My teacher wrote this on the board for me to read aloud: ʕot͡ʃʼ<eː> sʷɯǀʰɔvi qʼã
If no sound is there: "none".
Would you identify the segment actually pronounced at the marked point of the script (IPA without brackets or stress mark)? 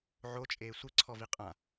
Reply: eː